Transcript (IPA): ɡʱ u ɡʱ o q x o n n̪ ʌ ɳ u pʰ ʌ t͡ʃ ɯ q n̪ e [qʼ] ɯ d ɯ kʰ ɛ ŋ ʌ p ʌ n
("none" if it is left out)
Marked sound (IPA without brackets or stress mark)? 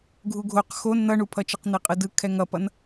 qʼ